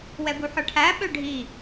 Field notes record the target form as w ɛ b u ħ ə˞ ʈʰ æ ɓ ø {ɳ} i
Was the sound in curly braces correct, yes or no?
no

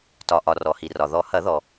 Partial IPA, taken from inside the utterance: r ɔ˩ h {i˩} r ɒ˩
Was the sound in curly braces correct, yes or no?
yes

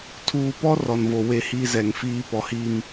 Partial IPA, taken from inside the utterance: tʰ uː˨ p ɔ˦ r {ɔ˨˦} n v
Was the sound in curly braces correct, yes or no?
no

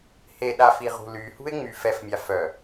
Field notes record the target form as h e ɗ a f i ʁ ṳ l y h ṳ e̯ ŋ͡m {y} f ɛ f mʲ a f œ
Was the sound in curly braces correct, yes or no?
yes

